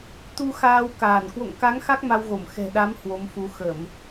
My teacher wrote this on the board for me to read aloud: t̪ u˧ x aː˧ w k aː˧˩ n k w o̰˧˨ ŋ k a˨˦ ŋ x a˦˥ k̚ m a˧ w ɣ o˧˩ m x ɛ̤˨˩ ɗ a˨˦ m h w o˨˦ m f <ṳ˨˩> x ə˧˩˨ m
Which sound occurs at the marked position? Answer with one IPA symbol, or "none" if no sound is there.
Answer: u˨˦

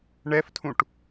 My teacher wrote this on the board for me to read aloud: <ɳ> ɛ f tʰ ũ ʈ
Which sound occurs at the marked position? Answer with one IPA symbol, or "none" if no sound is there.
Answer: ɳ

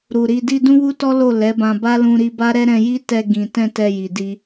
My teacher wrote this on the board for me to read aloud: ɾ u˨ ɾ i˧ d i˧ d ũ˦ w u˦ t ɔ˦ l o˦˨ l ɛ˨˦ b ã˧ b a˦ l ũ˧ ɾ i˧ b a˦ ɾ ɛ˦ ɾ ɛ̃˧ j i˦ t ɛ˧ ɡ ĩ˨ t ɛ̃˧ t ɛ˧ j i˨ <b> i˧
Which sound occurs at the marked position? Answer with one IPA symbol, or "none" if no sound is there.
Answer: d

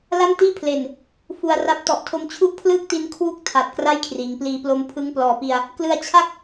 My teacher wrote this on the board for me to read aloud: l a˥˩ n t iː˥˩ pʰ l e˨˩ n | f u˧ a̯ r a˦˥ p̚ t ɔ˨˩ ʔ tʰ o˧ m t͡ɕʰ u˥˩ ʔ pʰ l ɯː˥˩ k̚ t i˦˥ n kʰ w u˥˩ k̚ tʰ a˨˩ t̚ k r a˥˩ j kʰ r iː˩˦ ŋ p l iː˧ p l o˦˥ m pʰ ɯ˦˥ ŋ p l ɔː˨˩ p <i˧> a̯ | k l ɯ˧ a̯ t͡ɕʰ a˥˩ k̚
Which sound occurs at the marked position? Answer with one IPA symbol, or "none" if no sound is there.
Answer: i˧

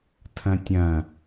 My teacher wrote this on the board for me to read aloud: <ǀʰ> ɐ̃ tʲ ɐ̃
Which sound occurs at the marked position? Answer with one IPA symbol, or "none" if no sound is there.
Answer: tʰ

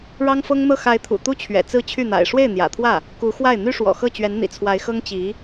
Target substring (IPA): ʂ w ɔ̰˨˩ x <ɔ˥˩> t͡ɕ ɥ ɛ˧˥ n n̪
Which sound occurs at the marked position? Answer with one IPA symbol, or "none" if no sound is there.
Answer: ɤ˥˩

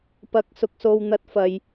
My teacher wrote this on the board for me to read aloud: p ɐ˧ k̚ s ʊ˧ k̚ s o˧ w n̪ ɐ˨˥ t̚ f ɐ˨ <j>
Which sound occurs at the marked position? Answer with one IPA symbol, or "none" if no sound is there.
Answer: j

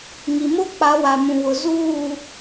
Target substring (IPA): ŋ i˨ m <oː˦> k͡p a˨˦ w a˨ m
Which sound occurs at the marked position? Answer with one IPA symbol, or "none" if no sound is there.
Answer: o˦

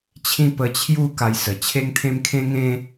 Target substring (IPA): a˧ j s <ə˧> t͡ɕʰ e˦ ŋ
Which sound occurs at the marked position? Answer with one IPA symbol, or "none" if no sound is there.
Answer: ə˨˩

